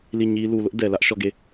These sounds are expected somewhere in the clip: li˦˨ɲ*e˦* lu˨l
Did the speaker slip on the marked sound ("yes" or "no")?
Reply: yes